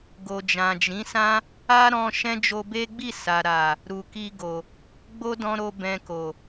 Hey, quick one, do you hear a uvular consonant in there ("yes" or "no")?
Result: no